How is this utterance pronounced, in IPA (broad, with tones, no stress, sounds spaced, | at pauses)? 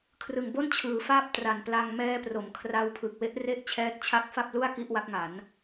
kʰ r ɯ˨˩ ŋ b o˥˩ n t͡ɕʰ ɯː˩˦ f aː˥˩ p̚ t r a˨˩ n p l a˧ ŋ m ɛː˦˥ p r o˩˦ m kʰ r a˧ w pʰ ɯ˨˩ k̚ w e˦˥ ʔ r e˥˩ ʔ t͡ɕʰ ɛː˦˥ t̚ t͡ɕʰ a˥˩ k̚ f a˥˩ p̚ l u˥˩ a̯ k i˥˩ ʔ w a˦˥ k̚ ŋ a˩˦ n